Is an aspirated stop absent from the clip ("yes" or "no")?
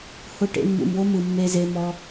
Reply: yes